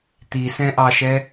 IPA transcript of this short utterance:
t̪ i s ɛ̃ ʔ ɑ ʃ ɛ

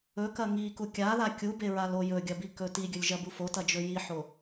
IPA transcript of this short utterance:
ɵ k ɐ ŋ i k u kʲ a ð a kʲ u b e ɹ a l o j ɵ ɡʲ ɐ b i k ɵ t i ɡʲ ɵ lʲ ʒ ɐ b u f o t ɐ d͡ʒ ɵ j i ħ o

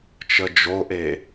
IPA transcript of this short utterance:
t͡ʃ ə d͡ʒ o ʔ e

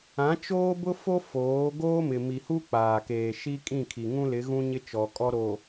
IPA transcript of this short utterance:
ã˨˦ t͡ʃ oː˦ b ʊ˦ f o˦ f oː˨˦ ɡ oː˦ m ɪ˨ m i˨ h u˦ k͡p aː˨ k eː˨ ʃ i˦ kʼ ĩ˦˨ kʰ i˨ ŋ ũ˦ l ɪ˨˦ ɣ ũ˦ ɲ ɪ˦ t͡ʃ ɔ˨ kʼ ɔ˦ ɾ oː˨

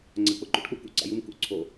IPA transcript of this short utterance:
ŋ͡ǀ a k͡p ʊ ǃ ṵ ʈ k͡p u k ṵ ǀ a̰ j u m k ṵ ǀʰ o

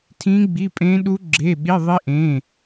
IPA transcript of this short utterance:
tʰ ĩ˦˥ ɡ͡b i˧˥˧ pʼ ẽ˦˥ ɗ u˦˥ ɡ͡ǁ e˧˥˧ ɓ i˧˥˧ ðˤ i˦˥ ʔ ẽ˧˥˧

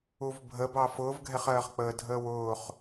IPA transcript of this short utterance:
u v bʱ ə b ɑ f ʊː v ɡʱ ɛ χ ɜː χ k͡p əː dʱ əː w ʊː χ

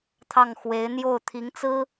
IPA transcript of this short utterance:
t̪ʰ ɑ˥˩ ŋ x w e˧˥ ɪ̯ n̪ j o˥˩ ʊ̯ t̪ʰ i˧˥ ŋ t͡s ɹ̩˥

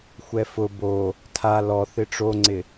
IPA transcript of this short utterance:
xʷ ɛ f ʊ b o | tʰ a l ɔ θ ɪ ʈ͡ʂ o ŋ͡ǀ ɪ

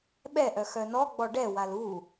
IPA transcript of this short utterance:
ɓ ɛ ʔ œ x œ n ɔ ɡ͡b ɔ ɖ ɛ w a l u

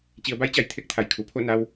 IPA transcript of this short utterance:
t͡ɕ i˩˧ ə̯ b a˧˥ j t͡ɕ a˩ j t̪ʰ e˧˥ k̚ t̪ʰ a˩ j kʰ u˩ pʰ o˥˨ n a˧ w

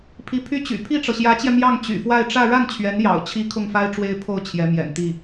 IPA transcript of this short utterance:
pʰ i˧˥ pʰ y˥ t͡ɕ y̰˨˩ pʰ i˥˩ ʈ͡ʂ ɤ˩ ɕ j ä˧˥ t͡ɕ j ɛ˧ m j ɑ˥˩ ŋ t͡ɕ y̰˨˩ f w a˥˧ ɪ̯ ʈ͡ʂ ä˥˧ ɻ a˥˩ n t͡ɕʰ ɥ ɛ˧˥ n j ɑ̰˨˩ ʊ̯ t͡ɕʰ i˧˥ kʰ ʊ˥˩ ŋ f a˥ ɪ̯ ʈ͡ʂ w e˥ ɪ̯ pʰ o˥˩ ʊ̯ t͡ɕʰ j ɛ˧˥ m j ɛ̰˨˩ n t̪ i˥˩

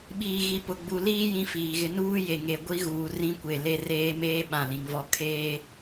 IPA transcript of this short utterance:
ɓ iː˨ ɣ i˨ p ʊ˨ ɡ͡b u˨ l iː˦ j ĩ˦ f iː˨ ɣ ɪ˦ n uː˦ j e˨ ŋ e˨ ɡʷ i˦ ɣ uː˨ r ĩ˦ kʷ e˨ l e˦ r eː˦ m eː˦ ɓ ã˦˨ l ĩ˨˦ ŋ v ɔ˦ kʰ eː˦

